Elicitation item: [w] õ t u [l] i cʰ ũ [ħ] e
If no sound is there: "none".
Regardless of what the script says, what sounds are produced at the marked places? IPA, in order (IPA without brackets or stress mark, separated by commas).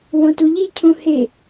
w, ʎ, h